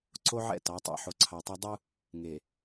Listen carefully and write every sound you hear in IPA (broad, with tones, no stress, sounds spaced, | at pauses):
ǀ o˦ ʕ ɛ̰˦˨ t ɑ˨˦ tˤ ɛ̰˦˨ ħ o˨ ǀʰ ɑ˨ tˤ ɑ˦ dˤ u˦ | ŋ e˨